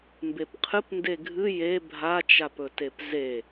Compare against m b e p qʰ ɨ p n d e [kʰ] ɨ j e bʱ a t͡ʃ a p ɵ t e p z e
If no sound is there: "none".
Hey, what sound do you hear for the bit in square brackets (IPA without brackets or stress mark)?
ɡʱ